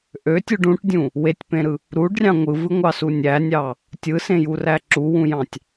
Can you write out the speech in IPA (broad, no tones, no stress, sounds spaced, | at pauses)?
ʔ ø tʲ u ɖ ũ ʈ dʲ ũ | w e tʲ p ẽ ɾ ɯ | ɾ u ɖ rʲ ɑ̃ ŋʷ ɯ v ɯ ŋʷ ɑ s u nʲ æ nʲ ɑ | tʲ ɯ s ẽ j u r æ ǁ u w ũ j ɑ̃ tʲ